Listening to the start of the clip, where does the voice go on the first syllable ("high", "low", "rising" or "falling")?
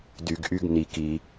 low